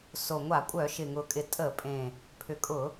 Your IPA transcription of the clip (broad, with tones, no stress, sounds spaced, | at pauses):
s o˨˩ ŋʷ a˧˩˧ kʷʼ œ˧˩˧ ʃ ɪ˨˩ ŋ ʊ˨˩ kʼ ɪ˨˩ tʼ ə˧˩˧ pʼ ẽ˨˩ | pʰ ʏ˨˩ kʼ ʊ˧˩˧